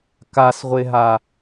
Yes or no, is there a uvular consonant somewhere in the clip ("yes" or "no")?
yes